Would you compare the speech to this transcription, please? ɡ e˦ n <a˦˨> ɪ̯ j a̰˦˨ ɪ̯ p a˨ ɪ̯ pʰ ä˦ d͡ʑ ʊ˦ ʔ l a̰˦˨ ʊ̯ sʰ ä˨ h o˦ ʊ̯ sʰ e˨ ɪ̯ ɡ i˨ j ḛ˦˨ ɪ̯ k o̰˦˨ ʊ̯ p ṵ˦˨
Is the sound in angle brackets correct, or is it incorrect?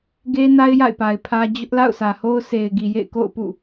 incorrect